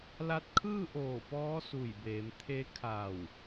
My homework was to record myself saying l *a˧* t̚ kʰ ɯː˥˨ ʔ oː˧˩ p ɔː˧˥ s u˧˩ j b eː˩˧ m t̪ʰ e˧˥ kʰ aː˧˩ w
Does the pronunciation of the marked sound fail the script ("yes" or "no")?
no